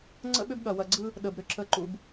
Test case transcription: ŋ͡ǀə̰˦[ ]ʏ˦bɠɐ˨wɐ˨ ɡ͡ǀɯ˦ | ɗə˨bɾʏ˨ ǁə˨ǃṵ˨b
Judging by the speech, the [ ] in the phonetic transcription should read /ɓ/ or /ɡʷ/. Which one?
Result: ɓ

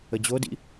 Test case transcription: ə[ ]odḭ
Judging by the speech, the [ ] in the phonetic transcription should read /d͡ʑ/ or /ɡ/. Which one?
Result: d͡ʑ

